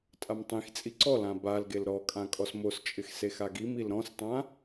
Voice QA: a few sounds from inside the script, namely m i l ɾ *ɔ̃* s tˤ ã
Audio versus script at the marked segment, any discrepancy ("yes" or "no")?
no